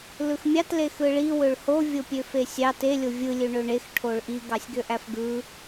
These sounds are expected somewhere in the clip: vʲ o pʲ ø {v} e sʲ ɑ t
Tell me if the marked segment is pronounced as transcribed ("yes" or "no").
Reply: no